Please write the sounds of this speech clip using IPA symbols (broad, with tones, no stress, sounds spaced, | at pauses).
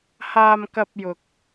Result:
h aː˧ m k ɐ˧ p̚ j ʊ˨ k̚